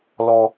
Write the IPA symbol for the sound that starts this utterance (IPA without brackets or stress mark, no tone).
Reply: l